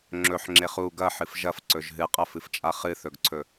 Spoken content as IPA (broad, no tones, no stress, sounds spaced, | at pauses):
ŋ͡ǁ ɵ ħ ŋ͡ǁ e χ u ɡ ɐ ħ ɨ f ʒ ɐ f ǀ ɵ ʒ ɦ ɨ qʼ ɐ f ɨ f t͡ʃʼ a χ ɨ θ ɵ ɡ ǀʰ ɵ